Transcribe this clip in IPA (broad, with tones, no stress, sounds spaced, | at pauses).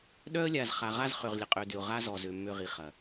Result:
ɗ œ˦ ə̯ lʲ a˨ z χ a˨ ʁ a˦ z χ ø˨ ʁ lʲ ə˨ qʼ ø˨ d ʏ˨ ʊ̯ ʁ a˦ z ɔ˨ z ø˨ mː ø˦˨ ʁ i˨ χ ɐ˨